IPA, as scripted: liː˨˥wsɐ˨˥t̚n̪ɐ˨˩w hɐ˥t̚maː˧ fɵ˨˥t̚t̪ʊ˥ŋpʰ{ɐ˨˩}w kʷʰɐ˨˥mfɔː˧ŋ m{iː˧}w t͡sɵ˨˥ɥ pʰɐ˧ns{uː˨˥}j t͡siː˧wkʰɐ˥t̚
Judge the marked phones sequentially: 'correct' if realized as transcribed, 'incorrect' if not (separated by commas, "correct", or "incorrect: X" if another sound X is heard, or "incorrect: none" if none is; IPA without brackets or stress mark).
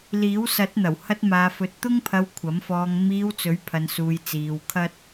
incorrect: ɐ˧, correct, incorrect: uː˧